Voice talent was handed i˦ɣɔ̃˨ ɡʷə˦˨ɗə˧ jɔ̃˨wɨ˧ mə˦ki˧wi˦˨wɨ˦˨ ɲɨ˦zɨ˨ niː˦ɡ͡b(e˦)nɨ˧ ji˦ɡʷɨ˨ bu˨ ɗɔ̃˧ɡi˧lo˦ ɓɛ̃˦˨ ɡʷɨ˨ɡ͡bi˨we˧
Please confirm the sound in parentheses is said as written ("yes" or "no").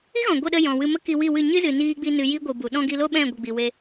no